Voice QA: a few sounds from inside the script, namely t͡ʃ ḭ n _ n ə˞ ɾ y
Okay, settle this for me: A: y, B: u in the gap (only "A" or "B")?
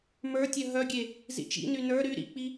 A